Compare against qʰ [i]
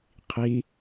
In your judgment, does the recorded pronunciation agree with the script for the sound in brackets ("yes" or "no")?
yes